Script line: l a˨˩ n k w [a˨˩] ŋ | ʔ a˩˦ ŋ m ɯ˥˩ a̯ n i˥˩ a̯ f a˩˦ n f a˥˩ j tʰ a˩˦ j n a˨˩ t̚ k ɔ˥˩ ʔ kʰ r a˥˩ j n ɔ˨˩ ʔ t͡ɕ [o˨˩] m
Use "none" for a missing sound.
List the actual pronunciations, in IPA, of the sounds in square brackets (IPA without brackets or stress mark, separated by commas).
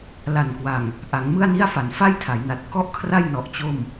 a˨˩, o˥˩